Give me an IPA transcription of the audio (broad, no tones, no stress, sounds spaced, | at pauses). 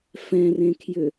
f ɛ̃ r ẽ kʰ j ʏ